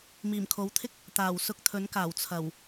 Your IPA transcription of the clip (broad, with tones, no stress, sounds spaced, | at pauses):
m iː˨˩ m kʰ o˨˥ w t̪ʰ ɪ˥ k̚ | t̪ aː˨˩ w s ʊ˧ k̚ t̪ʰ ɵ˨˥ n k aː˨˩ w t͡sʰ ɐ˨˩ w